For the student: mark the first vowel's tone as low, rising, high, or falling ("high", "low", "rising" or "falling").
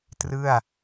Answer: falling